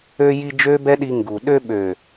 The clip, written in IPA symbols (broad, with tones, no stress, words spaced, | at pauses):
ø˧ji˧ d͡ʒø˦bɛ˦ɗi˧ ŋɡu˨ ɗø˧ɓø˨